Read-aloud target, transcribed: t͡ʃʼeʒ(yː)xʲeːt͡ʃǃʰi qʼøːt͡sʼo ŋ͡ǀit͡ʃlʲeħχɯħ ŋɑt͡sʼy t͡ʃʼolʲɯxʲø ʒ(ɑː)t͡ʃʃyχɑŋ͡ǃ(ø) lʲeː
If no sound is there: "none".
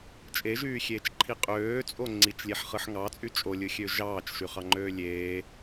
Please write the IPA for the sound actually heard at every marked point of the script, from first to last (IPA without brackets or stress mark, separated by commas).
yː, ɑː, øː